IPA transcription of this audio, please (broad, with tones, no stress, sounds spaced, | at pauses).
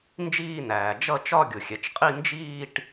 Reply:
n d͡ʒ iː˥˧ n æː˩ d͡ʒ ʌ˥˧ t͡ʃ ɒ˥˧ ɡʲ ʊ˩ xʲ ɛ˩ t͡ʃ qʼ i˥˧ n d͡ʒ iː˥˧ ʈ